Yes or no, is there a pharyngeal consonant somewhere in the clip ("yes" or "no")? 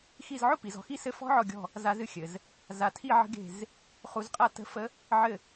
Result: yes